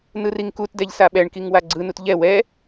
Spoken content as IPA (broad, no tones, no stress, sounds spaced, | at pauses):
n ɯ r i ŋ k u t d ɛ ʎ s a ɓ ɛ ɳ k i ŋ w a ɡ͡ǀ ɯ n u t ʎ ɛ w ɛ